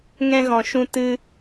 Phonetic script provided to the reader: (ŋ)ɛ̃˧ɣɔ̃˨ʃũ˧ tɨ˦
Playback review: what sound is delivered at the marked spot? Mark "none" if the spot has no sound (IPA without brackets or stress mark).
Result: ŋ